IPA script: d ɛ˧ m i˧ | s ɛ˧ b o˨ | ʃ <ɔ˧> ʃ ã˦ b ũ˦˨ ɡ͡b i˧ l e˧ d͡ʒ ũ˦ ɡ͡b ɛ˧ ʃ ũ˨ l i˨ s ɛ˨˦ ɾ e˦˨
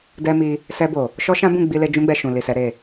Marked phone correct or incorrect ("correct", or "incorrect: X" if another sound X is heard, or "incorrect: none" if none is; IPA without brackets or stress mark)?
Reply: incorrect: ɔ˦